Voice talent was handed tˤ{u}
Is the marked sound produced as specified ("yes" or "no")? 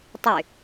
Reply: no